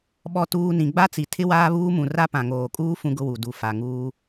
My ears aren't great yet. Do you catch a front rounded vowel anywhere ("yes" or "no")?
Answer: no